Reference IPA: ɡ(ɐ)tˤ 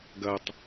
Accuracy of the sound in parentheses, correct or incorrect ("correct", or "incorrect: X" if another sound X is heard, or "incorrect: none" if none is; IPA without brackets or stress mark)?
correct